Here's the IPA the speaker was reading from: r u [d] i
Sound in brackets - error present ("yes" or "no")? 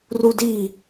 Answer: no